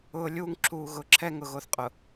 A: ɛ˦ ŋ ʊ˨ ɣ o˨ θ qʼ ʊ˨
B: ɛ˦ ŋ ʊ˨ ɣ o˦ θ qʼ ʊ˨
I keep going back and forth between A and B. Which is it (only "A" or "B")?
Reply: A